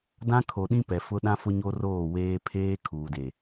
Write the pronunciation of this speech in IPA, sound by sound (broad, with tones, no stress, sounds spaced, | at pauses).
d ã˦ kʰ o˨ ɗ ĩ˦ p ɛ˨ f ʊ˦ ɗ ã˦ f ʊ˦ ɲ o˦ r oː˦˨ w eː˦ pʰ eː˦ kʰ uː˨ d e˨